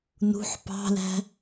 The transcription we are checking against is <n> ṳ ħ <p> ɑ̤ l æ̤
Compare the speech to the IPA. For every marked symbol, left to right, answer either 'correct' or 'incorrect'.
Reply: correct, correct

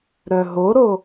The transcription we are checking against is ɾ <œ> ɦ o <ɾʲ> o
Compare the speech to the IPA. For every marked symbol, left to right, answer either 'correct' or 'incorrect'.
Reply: correct, incorrect

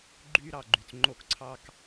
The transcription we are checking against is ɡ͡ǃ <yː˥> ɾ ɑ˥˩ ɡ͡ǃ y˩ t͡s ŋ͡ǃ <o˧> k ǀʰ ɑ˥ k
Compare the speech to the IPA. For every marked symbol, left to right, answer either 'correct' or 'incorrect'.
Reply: correct, correct

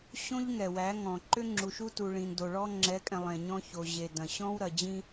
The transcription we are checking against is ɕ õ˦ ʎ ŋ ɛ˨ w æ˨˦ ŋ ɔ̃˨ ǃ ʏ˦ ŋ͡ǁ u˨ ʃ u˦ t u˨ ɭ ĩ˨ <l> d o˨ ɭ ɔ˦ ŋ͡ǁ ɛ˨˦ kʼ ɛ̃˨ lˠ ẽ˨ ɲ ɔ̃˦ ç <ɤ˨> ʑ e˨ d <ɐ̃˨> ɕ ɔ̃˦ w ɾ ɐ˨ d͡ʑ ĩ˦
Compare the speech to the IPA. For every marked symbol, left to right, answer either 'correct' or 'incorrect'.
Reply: incorrect, incorrect, correct

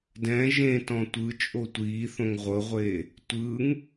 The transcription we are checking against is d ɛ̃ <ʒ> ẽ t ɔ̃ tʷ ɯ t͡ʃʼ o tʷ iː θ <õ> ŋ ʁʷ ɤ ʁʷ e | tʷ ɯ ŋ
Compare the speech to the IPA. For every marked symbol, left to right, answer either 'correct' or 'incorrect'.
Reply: correct, correct

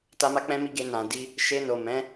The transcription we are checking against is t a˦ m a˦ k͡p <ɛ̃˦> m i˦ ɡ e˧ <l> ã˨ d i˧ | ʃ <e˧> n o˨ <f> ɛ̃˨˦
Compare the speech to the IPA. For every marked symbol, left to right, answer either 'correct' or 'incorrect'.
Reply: correct, incorrect, correct, incorrect

